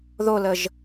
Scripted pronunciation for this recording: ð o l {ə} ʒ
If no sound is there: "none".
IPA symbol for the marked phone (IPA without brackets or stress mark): ə